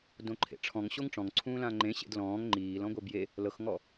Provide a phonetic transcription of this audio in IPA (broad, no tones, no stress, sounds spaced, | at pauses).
d õ ǃʰ ḛ ʈ͡ʂʰ ɔ̃ ŋ ɕ o ŋ ʈ͡ʂ ɔ̃ ŋ ǀʰ ũː l ã ŋ͡ǃ ẽ ɕ ḛ d l ɔ̃ː ŋ ŋ͡ǃ iː l ɔ̃ ɡʷ ɛ b j e | l ɤ x ŋ ɔ